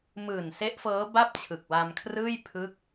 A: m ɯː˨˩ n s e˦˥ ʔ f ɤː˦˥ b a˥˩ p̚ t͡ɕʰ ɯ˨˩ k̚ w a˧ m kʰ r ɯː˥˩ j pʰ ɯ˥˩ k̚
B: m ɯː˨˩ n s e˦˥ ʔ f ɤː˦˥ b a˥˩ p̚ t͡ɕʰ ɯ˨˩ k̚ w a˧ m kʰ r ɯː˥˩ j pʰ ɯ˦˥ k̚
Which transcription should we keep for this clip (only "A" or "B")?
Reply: B